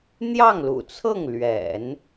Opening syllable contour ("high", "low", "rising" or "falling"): falling